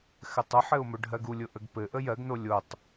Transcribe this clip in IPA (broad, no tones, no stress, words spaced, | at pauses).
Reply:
xɘtˤʊħɘʊ̯ mɵɖʱɜɡulʲʊ ʔəɡpɘʔə jɜɡno lʲotˤ